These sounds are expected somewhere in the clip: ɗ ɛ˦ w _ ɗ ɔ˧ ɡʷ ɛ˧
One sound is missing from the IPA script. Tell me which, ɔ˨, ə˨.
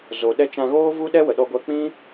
ə˨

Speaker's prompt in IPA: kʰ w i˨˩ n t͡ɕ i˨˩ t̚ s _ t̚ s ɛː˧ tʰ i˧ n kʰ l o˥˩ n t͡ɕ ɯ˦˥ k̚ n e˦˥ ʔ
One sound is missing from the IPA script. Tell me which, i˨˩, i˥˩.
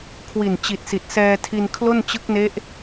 i˨˩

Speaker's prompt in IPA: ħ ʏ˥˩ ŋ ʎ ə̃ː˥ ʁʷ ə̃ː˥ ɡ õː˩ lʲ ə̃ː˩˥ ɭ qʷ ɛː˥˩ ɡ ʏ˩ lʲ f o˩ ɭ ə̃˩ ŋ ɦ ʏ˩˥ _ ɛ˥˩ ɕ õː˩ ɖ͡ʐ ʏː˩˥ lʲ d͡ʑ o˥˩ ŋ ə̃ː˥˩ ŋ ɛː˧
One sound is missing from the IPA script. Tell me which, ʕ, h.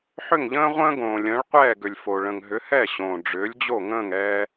h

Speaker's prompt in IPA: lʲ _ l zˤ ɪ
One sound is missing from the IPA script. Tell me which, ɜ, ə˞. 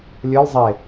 ə˞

